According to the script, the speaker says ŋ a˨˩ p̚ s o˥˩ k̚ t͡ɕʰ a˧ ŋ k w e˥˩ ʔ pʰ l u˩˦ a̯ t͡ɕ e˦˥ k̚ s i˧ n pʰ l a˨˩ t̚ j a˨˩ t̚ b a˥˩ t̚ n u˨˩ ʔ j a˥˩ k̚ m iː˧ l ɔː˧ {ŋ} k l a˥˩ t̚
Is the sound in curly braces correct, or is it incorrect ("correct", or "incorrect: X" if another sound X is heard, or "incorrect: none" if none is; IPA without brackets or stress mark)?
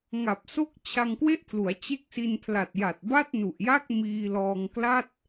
correct